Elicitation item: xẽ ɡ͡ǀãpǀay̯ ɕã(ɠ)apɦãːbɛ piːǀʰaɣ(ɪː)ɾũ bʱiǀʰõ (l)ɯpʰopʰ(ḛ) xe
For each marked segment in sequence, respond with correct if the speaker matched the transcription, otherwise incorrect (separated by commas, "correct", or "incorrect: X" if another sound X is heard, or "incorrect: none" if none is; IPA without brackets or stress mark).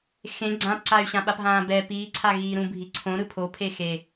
incorrect: ɓ, incorrect: iː, incorrect: ɾ, incorrect: e